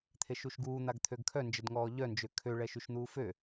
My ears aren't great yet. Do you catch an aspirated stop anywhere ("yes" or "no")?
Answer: yes